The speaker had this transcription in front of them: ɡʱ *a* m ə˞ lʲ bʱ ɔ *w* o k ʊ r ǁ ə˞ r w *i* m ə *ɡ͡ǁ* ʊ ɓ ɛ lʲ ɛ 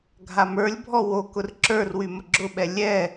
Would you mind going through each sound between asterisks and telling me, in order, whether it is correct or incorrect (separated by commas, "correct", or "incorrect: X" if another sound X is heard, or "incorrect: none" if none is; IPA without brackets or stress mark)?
correct, correct, incorrect: y, correct